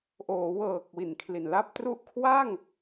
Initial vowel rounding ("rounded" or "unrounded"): rounded